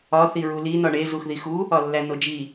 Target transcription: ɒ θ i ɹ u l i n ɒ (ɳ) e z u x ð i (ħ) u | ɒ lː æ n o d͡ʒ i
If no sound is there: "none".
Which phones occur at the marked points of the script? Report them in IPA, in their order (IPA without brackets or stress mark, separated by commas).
ɳ, x